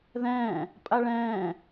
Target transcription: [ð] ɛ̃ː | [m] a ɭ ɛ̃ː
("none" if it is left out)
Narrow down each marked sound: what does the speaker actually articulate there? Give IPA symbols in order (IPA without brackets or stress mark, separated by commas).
ð, pʼ